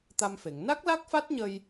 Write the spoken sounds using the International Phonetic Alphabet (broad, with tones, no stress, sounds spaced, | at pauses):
t̪ a˧ m f e˨˩˨ ŋ n a˦˥ k̚ l a˦˥ k̚ f a˦˥ t̚ ɲ ə˧ j